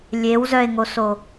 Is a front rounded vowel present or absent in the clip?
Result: present